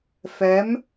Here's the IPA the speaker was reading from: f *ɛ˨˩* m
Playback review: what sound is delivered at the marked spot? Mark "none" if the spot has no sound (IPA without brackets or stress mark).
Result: ɛ˧˥